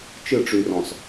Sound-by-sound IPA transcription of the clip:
t͡ʃ ɨ˦˨ ʈ͡ʂ y˨ r ɔ̃˨ s

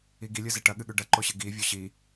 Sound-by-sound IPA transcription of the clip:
i ɡ i lʲ ɨ z e ʈ ɐ ɠ ɨ ɠ ʉ ɖ ɐ ǃ o ɕ ɨ ɡ i vʲ o ɕ i

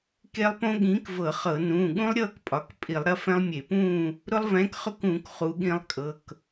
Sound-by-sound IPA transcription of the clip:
k e˦˥ lˠ p õ˦˥ ɠ ĩː˨˥ k v ɤ˧˩˧ χ ɤ˧˩˧ n ũː˩˧˩ ɠ ũ˦˥ lˠ ɾʲ ɤː˥˨ k pʼ ɒ˩˧˩ k pʼ i˧˩˧ lˠ ɾ ɐ˦˥ f ɛ̃˦˥ lˠ mʲ e˧˩˧ p ũː˥˨ | ɾ ʊ˦˥ lˠ v ɛ̃ː˨˥ k χ ʊ˥˨ k ũː˧˩˧ k χ u˨˥ ɠ ĩ˦˥ lˠ kʼ ɤ˩˧˩ k

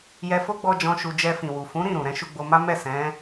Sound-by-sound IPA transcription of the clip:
j ɛ˧ f o˦ ɡ͡b ɔ˧ d͡ʒ ɔ̃˧ ʃ u˧ d͡ʒ ɛ˧ f ĩ˨ w u˨ f ũ˨˦ ɾ ĩ˦˨ ɾ ũ˨ ɾ ɛ̃˨˦ ʃ u˧ ɡ͡b o˧ m a˦ m ɛ˦˨ s ɛ̃˨˦

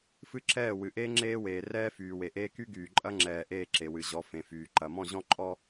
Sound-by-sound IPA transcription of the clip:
f ɨ˦ ǁ ɛː˦˨ w ɨ˨ ʔ eː˦ ŋ͡ǁ eː˦ w eː˨ r ɛː˦ f yː˨ w e˨ ʔ eː˦ k y˦ ɡ yː˨ ǃʼ ɐ˦ ŋ͡ǁ ɛː˨ ʔ eː˦˨ ǁ e˨ w ɨ˨ ʑ ɔ˨˦ f ẽ˨ f yː˨ ǃ ɐ˨ m ɔ̃˦˨ ʑ ɔ̃˦ ǃʼ ɔ˦

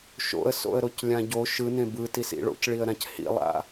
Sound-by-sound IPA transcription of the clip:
ʃ o̰ ə̯ s o̰ ə̯ ɾ o c lʲ ã ɟ o ʃ ɯ n ẽ b ɯ t i s ḭ ɭ o̰ c ɭ i ə̯ ɾ ã c h ḭ lˠ a̰

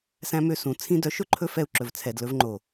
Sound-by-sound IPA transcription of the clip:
s æ̃˧ m ø˧ s ũ˨ t͡sʰ ĩ˧ d œ˨˦ ʃ ɵ˨ ǃʰ ɵ˦ f ɛ˧ u̯ ǁ ɵ˨ v t͡sʰ ɛ˨ d l ɵ˧ v ŋ͡ǃ o˨

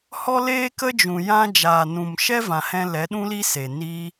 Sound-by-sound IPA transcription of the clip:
h ɔ˦ l eː˦ k ə˦ d͡ʒ ũ˨ j ã˦ d͡ʒ aː˨ n ũ˨ m ʃ ɛ˦ v ã˨ h ɛ̃˧ l ɛ˨˦ ɗ ũ˦ l i˦ s e˨ n iː˦

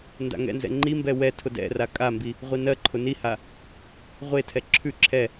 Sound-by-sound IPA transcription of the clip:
n d a̰ ŋ ɛ̰ n z ɛ̰ ŋ͡ǃ i m b ɛ w ɛ tʰ ʊ d ɛ̰ r a kʼ a m b i | ʁʷ i n ɜ ǃʰ ʊ n i h a | ʁʷ e tʰ ɛ ǁʰ ʉ ǁʰ ɛ

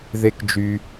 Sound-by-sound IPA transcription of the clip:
ð e˦ k d͡ʒ y˧

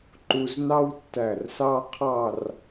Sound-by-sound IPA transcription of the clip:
ǃ u˧ z n ɑ˥ w tː æ˧˩ r s ɑ˥ qʰ ɑ˥˧ r

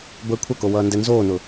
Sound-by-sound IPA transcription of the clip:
b əː kʷʰ ɐ k o w ʌː n d ɛ n z oː n ʊ

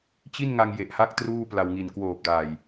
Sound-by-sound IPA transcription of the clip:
t͡ɕ i˥˩ n ŋ a˧ ŋ j e˨˩ ʔ h a˥˩ k̚ t r uː˥˩ p l a˧ w ŋ i˨˩ n k w oː˨˩ p̚ d aː˨˩ j

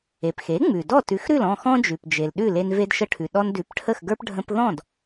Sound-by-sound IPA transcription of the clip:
e˩ p x e˩˥ ŋ͡m ʉ˩ d ɔ˥˩ t ʉ˩˥ x ɾ ʉ˥˩ l ɔ̃˥˩ x ɔ̃˥ d͡ʒ ʉ˩ p d͡ʒ e˩ l ɗ ʉ˥˩ l e˧ n v e˧ d ʃ ə˧ ʈʰ ʉ˩ ɗ ɔ˧ n d ʉ˩˥ p ʈʰ ə˥˩ x ɡ ə˞˥ p ɖʱ ə̃˧ p ð ɔ̃˥˩ d

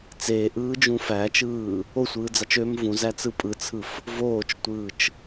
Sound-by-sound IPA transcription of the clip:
t͡s eː ʔ ɯː d͡ʒ ũ f æː t͡ʃ ɯː | o sʷ ɯː d͡z ɑ t͡ʃ ø m v ũ z æ t͡s ɯ pʼ ɯ t͡sʰ ɯ f | v oː t͡ʃ tʷ ɯː t͡ʃ

